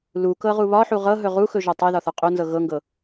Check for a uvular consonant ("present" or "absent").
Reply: present